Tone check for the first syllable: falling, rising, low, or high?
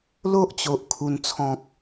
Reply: high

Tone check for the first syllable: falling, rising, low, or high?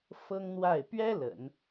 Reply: high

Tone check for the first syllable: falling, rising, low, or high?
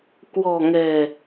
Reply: low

